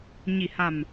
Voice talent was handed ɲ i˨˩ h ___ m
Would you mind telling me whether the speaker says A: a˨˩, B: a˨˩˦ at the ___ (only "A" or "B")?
A